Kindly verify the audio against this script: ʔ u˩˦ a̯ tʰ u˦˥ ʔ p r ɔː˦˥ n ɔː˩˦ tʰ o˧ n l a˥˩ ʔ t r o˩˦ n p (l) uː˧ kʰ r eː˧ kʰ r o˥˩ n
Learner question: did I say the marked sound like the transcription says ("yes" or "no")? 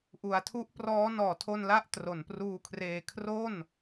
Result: no